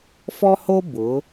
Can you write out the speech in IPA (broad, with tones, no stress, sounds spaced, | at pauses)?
f ɔ˦ h o˦ b ʊ˨˦